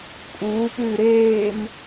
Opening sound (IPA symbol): kʼ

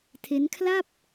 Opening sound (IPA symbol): tʰ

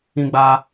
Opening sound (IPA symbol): ĩ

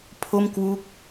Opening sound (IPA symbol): pʰ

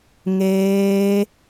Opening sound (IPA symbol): ŋ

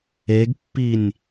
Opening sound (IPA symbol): e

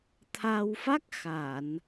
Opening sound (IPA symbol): t̪ʰ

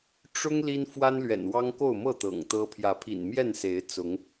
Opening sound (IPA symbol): ʈ͡ʂ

